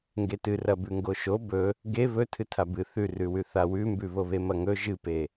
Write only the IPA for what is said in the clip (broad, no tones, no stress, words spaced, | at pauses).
ŋɡetɨrɐbʉ ŋɡoʃo bɵ | ɡe βɵ tʰɨtʰabɨ θʉrʉwʉ θawʉmbʉ βoβemɐŋɵ ʒɨpe